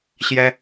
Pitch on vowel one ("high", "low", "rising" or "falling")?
high